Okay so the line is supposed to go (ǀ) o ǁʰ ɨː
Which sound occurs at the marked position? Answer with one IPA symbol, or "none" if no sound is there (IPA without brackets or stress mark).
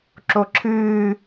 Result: ǁ